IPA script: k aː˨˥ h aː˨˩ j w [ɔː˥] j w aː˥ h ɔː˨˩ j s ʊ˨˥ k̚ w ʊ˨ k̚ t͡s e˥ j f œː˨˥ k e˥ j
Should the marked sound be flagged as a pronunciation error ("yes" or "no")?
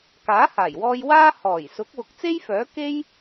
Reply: yes